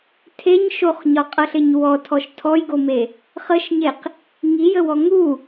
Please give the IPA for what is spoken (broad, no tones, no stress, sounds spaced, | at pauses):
tʰ e ɲ ʃ o χ ɲ ɒ qʼ ɤ ɬ ɪ ɲ w ɔ tʰ ɔ ʃ tʰ ɔ j ɡ o m e | χ ə ʃ ɲ e q | ŋ i j ə w ɔ ŋ u